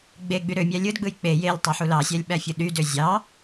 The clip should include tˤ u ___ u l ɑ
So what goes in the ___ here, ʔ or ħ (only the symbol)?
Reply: ħ